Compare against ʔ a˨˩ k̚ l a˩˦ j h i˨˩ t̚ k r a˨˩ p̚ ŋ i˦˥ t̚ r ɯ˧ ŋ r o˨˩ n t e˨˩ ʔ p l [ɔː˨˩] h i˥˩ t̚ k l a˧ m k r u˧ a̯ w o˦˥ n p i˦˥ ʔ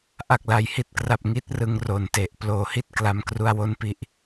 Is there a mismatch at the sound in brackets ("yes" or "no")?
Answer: yes